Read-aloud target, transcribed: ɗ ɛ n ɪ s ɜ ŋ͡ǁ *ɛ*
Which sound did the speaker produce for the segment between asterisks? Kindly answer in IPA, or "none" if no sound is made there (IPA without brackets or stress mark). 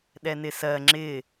ɪ